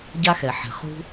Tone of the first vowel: high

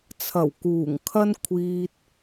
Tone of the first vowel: low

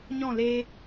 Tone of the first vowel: falling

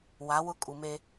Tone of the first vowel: rising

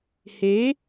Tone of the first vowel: rising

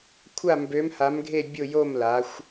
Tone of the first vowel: falling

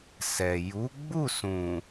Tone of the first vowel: low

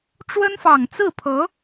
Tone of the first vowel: high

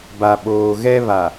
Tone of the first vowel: low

